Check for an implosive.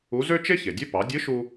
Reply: absent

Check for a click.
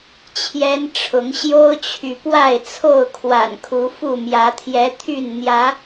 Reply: absent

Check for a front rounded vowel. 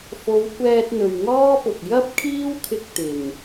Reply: absent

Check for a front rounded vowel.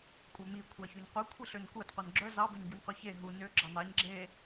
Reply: present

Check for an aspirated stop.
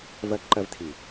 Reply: present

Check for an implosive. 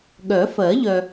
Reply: present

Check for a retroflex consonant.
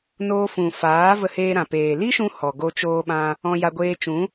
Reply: absent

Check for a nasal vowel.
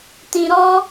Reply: present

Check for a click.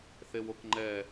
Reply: present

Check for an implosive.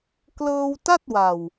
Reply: absent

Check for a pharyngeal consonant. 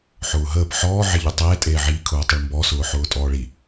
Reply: present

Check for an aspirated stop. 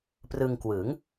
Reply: absent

